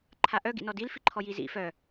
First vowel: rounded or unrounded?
unrounded